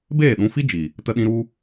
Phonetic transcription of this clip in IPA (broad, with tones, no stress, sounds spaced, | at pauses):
b eː˦˨ ɗ ũ˧ f i˦ d͡ʒ i˨ | t ə˦ ɗ ĩ˦ ɾ u˦